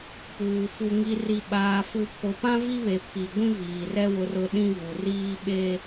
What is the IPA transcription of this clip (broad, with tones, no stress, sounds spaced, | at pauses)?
p uː˨ f u˨ ŋ i˨ r i˨ ɓ aː˨ f u˨ pʰ o˨ p ã˦ v i˦ β e˨ pʰ i˨ ɡʷ ĩ˦ v iː˨ r ɛ˦ w ʊ˨ r ʊ˨ ɗ ĩ˦ v u˨ r iː˦ ɓ e˦